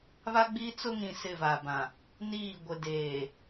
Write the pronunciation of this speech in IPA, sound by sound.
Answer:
β a˦ ɡ͡b iː˦ t͡s ʊ˦ ŋ ĩ˨ s ɪ˦˨ v a˨ b ã˨ | n iː˦˨ ɡʷ ɪ˨ d eː˨

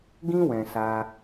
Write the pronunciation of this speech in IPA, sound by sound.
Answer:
ɡ ĩ˦ w ɛ̃˧ s a˧

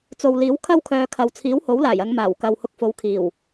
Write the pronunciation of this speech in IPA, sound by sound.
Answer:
t͡s o˨ w l iː˨˥ w kʰ ɐ˥ w kʰ œː˨˧ kʰ ɐ˨ w t͡sʰ iː˨˥ w h o˨˥ w l aː˨˩ j ɐ˨˧ ŋ m aː˨˩ w k ɐ˨ w h ʊ˧ k̚ f o˨˧ w kʰ iː˨˩ w

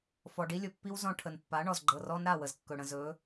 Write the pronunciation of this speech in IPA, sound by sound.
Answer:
f ɔ˨ ɖ i˦ lʲ ɵ˨ pː i˦ w z ɔ̃˦ ʈʰ ə˨ n pː a˨˦ ɳ ɔ˨ z ɡ͡ǃ ɤ˨ r ɔ˦ n ɾ a˦˨ w ə˨ z kː ɵ˨ ɽ ə̃˨ z ɵ˨˦

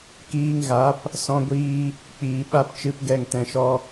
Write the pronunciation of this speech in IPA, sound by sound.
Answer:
k iː˧ ŋ ɣ a˨˦ p | s ɔ̃˦ ɡʷ iː˦ | k͡p iː˨ ɓ a˦ p t͡ʃ ɨ˦ p ɡ ɛ˦˨ ŋ t ɛ̃˧ ʃ ɔ˦

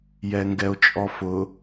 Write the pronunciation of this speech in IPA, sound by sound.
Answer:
j ɛ ŋ ɡ ɛ o̯ t͡ʃʼ ɔ f ʊ

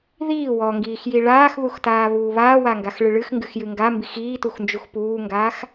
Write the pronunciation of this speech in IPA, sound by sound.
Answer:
ð iː w ɔ ŋ ɡ iː x j i ɭ aː x ð u x t aː β uː β aː w a ŋ ɡ a x ɭ ɨ ɭ ɨ x ŋ ɡ ɨ x j ɨ ŋ ɡ a m b i x iː t u x n d͡ʒ u x p uː ŋ ɡ aː x

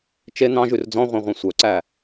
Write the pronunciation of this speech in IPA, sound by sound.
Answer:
t͡ʃ e n̪ ɑ̃ ʒ ʉ r d͡z ɔ̃ ʁʷ ɛ̃ ʁʷ ɛ̃ sʷ œ ǀ æ

